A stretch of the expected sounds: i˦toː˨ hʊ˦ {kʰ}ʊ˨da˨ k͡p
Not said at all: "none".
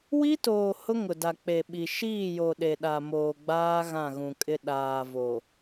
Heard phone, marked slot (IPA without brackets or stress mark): ŋ